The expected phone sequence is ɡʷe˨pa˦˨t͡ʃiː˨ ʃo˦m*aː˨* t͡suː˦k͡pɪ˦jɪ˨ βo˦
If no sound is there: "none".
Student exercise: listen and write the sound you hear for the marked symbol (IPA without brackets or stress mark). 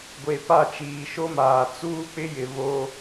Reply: aː˨